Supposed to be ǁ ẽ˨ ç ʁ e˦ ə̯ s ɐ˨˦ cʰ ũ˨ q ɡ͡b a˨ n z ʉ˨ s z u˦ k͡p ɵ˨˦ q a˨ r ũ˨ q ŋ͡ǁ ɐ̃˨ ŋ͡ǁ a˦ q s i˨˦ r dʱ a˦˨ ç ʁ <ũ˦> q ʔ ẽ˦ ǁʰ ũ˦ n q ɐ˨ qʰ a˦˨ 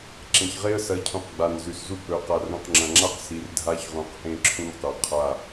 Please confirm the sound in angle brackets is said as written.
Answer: no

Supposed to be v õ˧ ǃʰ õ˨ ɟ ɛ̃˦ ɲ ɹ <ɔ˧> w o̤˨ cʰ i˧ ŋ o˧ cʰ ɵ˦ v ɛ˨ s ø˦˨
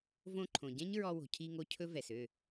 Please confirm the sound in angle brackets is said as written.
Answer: yes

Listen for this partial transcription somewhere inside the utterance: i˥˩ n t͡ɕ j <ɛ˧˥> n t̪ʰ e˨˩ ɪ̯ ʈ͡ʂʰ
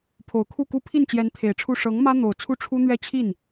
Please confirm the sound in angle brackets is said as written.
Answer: yes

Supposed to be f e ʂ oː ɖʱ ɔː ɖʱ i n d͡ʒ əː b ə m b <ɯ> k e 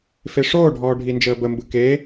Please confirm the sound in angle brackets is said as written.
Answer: yes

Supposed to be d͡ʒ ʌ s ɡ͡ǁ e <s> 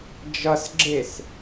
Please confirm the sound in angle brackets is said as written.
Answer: yes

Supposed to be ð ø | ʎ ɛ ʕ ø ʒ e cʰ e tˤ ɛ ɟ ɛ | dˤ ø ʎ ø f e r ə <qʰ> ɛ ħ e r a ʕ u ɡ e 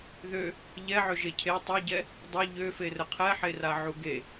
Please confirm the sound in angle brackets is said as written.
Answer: yes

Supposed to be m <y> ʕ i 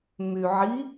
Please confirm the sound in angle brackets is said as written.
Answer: yes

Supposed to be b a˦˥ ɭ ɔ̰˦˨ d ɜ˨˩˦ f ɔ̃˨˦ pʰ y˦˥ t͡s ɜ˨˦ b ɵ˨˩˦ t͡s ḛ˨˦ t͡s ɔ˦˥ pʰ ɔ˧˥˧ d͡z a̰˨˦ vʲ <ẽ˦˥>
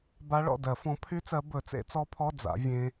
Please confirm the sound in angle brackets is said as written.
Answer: yes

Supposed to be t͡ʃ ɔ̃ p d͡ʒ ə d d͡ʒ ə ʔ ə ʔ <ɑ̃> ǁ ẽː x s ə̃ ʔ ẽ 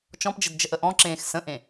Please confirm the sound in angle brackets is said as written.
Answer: no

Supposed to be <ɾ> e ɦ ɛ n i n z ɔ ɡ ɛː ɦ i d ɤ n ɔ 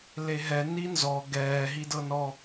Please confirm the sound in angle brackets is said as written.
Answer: no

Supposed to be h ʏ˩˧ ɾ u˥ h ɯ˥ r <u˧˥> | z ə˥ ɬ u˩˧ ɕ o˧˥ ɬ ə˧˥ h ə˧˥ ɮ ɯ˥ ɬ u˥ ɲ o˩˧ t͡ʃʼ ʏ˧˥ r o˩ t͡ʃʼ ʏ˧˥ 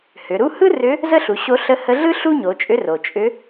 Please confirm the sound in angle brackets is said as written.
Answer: no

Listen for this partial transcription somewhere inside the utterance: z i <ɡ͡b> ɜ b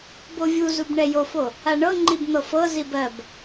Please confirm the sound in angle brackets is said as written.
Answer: no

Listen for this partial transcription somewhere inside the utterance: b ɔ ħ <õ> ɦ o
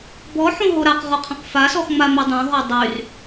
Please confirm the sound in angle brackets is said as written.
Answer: yes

